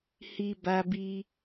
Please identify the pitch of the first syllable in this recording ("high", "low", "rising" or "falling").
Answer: high